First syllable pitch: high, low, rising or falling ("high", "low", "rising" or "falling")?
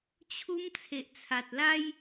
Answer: high